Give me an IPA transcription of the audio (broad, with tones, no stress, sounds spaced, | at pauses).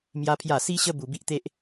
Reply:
m j a˦ pʰ j a˥˧ s i˦ ɕ ə˦ b u˧ b i˦ ʔ t̪ e˦ ʔ